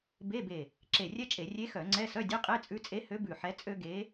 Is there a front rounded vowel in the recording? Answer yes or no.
yes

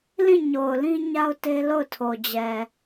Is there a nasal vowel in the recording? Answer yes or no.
yes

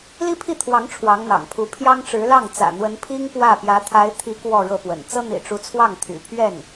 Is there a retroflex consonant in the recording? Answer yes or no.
yes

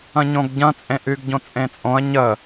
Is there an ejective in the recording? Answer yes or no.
yes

